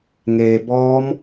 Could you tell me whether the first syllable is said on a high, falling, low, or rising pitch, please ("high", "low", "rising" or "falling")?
low